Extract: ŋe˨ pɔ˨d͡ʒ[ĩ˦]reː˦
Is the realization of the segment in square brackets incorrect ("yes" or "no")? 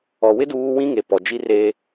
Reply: yes